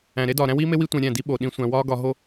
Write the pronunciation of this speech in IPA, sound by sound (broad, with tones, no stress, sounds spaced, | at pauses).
æ̃˨ ɾ e˦ d ɒː˨ ɾ æ̃˦ w iː˦ m e˦ w i˦ tʷ ẽ˧ ɾʲ æ̃˦˨ d i˦ ɓ o˨ ɗ ĩ˦ sʷ æ̃˧ w ɒː˦ ɡ ɒ˧ ɦ o˦